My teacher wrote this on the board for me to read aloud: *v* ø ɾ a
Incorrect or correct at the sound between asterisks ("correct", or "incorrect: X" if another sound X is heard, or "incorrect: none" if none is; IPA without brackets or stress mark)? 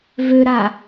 correct